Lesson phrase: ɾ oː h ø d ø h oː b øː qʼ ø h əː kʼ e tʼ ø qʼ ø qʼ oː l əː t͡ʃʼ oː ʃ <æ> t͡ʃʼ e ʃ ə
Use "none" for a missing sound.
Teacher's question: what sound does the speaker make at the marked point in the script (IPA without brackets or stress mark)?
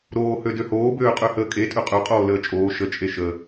ə